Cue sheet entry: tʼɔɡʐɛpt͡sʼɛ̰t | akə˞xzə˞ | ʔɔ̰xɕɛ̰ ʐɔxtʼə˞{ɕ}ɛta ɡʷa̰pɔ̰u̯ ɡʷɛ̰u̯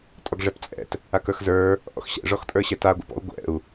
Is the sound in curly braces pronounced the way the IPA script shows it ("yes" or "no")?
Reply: yes